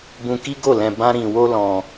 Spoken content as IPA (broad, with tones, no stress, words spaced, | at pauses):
bũ˧ki˦ɡo˦˨lɛ̃˧ bã˦ɾĩ˧ wo˦lɔ̃˧